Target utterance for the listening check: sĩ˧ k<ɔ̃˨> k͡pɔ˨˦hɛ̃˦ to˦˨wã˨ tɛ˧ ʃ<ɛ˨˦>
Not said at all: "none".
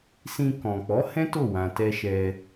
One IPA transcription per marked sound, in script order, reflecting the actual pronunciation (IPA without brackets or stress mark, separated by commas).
ɔ̃˨, ɛ˧